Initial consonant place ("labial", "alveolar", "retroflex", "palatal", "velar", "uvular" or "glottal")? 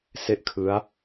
alveolar